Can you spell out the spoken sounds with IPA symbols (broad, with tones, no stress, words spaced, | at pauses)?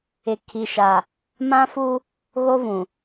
ɪ˨ kʰi˨ʃa˨ | mã˦fu˦ | ɣo˦vũ˨